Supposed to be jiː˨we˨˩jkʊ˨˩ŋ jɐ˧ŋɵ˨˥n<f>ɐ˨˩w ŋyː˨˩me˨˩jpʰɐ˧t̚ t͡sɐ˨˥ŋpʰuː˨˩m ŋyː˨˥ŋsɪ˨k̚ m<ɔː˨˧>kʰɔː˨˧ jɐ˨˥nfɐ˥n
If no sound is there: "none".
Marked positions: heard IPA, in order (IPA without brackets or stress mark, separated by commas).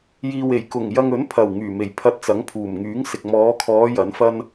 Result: pʰ, ɔː˨˧